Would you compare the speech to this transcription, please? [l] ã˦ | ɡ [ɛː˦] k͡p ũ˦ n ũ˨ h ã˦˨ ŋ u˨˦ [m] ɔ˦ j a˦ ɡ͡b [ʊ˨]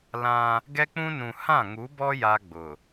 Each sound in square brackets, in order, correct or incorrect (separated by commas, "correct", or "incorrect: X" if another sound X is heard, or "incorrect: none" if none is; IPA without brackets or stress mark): correct, incorrect: ɛ˦, incorrect: b, correct